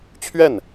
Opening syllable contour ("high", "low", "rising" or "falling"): falling